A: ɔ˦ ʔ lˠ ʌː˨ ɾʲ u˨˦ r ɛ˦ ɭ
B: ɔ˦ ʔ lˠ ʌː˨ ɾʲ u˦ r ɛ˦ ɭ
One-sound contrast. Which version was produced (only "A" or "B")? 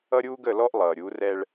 A